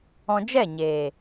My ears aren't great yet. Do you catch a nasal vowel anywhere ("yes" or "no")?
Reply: yes